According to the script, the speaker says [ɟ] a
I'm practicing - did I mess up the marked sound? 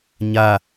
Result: yes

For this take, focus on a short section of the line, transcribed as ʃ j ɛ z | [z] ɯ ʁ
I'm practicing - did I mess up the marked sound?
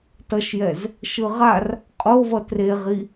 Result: yes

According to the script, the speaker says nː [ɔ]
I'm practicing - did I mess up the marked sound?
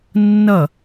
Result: yes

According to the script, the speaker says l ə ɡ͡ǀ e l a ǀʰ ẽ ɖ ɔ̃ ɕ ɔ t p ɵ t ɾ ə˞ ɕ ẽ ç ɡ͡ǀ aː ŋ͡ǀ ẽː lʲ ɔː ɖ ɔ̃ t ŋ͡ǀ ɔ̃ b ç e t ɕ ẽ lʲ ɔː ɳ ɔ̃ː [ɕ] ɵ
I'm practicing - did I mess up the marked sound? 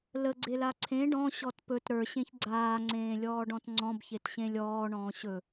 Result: no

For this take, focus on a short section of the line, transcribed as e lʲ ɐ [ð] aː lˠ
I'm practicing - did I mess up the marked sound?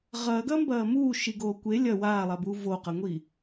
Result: yes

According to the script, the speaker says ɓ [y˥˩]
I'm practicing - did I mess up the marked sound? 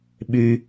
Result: yes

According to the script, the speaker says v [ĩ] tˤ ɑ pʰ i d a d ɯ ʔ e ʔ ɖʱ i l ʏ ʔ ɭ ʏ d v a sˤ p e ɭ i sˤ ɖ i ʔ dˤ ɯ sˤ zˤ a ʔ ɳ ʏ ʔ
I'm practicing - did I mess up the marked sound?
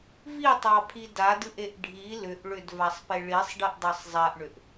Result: yes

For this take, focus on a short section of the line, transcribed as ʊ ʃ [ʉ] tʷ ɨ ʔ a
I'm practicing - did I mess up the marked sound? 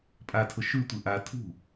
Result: no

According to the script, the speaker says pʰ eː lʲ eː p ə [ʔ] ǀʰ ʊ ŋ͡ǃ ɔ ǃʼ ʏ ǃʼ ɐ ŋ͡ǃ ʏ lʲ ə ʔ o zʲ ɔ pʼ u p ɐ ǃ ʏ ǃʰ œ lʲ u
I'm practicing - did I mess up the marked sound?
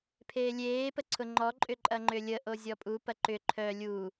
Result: yes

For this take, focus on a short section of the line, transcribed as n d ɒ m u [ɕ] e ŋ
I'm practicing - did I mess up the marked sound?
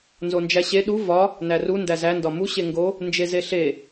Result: no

